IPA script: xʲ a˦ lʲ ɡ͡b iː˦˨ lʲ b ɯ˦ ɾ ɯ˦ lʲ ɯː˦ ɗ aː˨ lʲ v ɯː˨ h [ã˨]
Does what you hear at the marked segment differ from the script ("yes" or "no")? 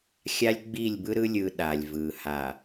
yes